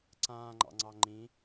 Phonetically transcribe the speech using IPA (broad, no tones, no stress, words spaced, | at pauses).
ǀãːŋ͡ǃɑ̰ŋ͡ǀɑ ŋ͡ǃĩ